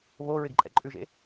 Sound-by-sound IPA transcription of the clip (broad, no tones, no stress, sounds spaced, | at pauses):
β o ɹ ɪ ɡ ǃʼ ɛ̰ ǃʼ ʉ ʒ ḛ